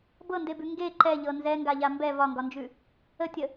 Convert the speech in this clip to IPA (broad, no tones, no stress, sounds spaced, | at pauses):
b ɤ n d e b ʉ ŋ ɡ e ǃ ɛ ʎ ɤ n z ɛ ŋ ɡ a ʎ a m b ɛ v ɒ ŋ ɡ ɒ n d͡ʒ ʉ | ə tʲ ə